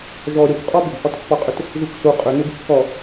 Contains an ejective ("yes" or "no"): yes